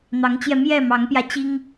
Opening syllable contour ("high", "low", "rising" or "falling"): rising